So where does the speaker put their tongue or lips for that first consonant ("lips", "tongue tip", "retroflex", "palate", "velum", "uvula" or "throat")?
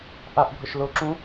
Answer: throat